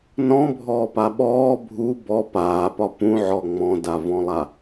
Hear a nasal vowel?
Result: yes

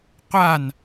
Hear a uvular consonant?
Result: yes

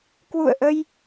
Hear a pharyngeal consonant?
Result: no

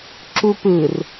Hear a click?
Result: yes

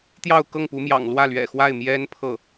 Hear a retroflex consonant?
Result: no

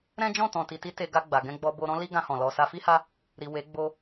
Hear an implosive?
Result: no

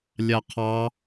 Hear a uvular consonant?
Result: yes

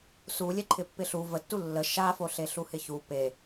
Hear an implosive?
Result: no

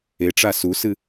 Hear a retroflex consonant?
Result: yes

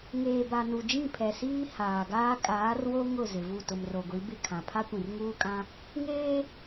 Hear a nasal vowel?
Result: yes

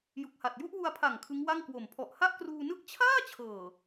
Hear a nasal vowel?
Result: no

